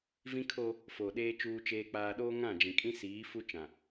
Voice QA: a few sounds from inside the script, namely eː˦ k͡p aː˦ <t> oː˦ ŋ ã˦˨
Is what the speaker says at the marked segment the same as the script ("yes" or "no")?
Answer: no